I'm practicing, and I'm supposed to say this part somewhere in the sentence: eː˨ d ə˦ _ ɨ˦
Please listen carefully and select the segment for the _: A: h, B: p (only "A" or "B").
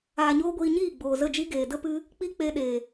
B